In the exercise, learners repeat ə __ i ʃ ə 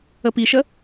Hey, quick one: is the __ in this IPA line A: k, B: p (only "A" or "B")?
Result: B